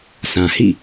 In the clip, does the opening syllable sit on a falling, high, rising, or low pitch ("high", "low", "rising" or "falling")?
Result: low